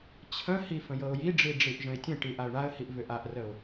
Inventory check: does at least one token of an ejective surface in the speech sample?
no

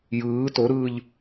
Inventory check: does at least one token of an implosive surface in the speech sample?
no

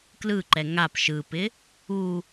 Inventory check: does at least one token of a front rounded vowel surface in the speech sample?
no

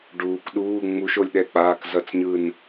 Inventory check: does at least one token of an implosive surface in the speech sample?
yes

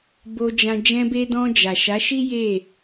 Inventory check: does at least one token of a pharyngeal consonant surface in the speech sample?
no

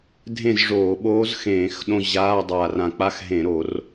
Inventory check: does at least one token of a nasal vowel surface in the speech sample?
yes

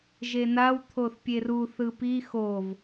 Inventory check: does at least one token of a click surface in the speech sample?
no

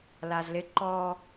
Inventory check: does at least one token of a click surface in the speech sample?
yes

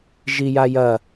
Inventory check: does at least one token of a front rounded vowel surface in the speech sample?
no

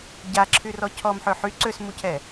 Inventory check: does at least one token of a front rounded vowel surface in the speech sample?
yes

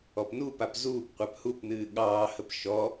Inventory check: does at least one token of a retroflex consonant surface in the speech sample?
no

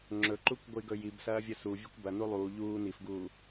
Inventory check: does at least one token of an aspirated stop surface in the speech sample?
no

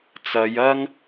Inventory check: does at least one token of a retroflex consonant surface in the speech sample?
no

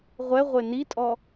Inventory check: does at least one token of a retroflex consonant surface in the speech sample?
no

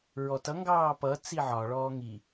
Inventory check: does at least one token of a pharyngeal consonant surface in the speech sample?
yes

